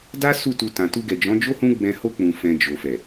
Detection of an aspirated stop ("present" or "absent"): absent